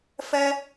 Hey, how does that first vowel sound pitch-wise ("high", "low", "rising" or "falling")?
high